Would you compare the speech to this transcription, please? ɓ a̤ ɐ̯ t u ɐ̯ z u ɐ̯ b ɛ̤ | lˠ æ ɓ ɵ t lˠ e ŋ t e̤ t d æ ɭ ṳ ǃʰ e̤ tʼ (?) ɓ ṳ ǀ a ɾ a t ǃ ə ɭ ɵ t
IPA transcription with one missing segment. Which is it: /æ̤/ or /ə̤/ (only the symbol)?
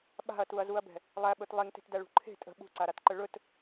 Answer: ə̤